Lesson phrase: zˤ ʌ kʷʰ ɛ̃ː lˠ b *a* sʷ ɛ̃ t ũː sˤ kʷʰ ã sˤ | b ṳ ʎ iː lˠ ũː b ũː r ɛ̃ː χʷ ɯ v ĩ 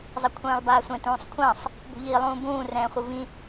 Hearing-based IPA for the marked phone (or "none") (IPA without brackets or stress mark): aː